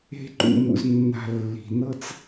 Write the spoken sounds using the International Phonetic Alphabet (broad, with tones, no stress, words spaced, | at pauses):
e̤˦ǃṵ˧mṵ˧znːa̤˧ lːi̤˨nɤ˦t͡s